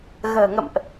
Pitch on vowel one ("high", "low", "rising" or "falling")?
low